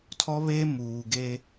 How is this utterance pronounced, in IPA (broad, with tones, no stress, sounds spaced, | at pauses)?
tʰ ɔ˦ β e˦ m uː˨ ɡ e˦